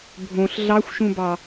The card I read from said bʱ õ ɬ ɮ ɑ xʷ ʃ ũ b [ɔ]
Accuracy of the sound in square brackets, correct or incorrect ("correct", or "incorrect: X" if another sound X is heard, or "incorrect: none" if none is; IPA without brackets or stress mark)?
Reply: incorrect: ɑ